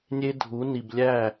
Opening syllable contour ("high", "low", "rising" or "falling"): high